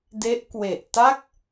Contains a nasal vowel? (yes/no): no